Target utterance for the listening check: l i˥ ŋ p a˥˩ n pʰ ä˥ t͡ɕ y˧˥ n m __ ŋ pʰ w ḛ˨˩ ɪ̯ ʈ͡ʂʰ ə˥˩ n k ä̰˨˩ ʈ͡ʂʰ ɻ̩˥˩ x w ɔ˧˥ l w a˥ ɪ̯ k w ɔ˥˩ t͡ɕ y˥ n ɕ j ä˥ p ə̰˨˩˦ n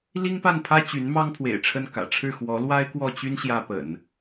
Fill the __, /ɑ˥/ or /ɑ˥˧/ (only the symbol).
ɑ˥